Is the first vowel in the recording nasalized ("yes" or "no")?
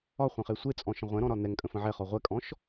no